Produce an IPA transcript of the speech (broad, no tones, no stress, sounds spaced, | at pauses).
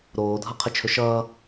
ɾ oː dʱ ʌ qʰ ə t͡ʃʰ ɵ ʃ ʌː